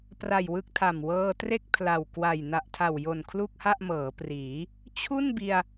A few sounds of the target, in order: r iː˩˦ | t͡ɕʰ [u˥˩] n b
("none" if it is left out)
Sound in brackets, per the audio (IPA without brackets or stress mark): u˥˩